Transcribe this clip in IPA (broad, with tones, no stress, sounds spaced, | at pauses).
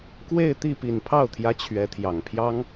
k w e˥˧ ɪ̯ t̪ i˥˩ p i˨˩ n pʰ ɑ˥˩ ʊ̯ t̪ʰ j ä˧˥ t͡ɕʰ ɥ ɛ˧˥ t̪ʰ j ɑ˨˩ ŋ pʰ j ɑ˥ ŋ